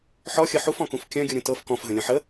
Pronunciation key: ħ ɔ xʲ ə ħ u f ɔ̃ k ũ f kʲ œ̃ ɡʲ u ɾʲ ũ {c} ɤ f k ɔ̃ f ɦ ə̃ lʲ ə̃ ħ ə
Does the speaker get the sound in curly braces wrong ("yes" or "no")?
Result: yes